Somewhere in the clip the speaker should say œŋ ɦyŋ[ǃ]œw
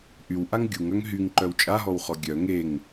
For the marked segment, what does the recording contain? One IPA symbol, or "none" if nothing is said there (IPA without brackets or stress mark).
ǃ